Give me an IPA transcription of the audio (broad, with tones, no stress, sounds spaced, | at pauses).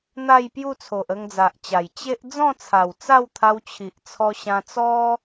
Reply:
n̪ a˥˧ j p j u˥˧ t͡sʰ o˨ ʔ ə˧ ŋ d͡z a˨ ʔ t͡ɕ a˨˩ j t͡ɕ e˦ ʔ d͡z ɔ̃˥˧ t͡sʰ a˨˩ w t͡s a˥˧ w t̪ʰ a˧ w t͡ɕʰ i˨ ʔ t͡sʰ ɔ˧ ɕ ã˧ t͡s ɔ˦